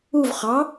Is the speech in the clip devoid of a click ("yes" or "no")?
yes